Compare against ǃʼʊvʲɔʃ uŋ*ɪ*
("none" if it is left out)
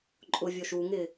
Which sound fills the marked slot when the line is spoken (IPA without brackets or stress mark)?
ɪ